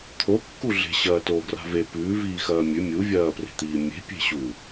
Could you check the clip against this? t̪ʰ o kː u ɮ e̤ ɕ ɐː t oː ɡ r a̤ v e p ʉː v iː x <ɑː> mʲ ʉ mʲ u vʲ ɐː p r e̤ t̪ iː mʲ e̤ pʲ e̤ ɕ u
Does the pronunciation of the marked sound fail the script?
yes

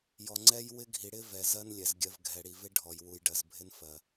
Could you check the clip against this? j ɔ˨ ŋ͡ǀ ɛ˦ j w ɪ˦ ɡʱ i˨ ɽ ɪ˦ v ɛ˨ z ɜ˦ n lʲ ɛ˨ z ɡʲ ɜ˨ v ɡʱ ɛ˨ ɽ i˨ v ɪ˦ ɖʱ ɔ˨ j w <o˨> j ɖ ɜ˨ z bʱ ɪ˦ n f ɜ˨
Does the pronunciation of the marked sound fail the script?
yes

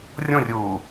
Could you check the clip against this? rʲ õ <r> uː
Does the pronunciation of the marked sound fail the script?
yes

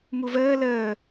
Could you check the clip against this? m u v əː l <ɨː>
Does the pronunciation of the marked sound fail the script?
yes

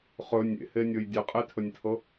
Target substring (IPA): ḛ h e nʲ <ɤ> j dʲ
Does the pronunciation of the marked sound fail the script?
no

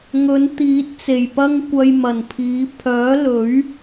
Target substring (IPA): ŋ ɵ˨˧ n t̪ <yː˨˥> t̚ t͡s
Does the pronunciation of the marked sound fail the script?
yes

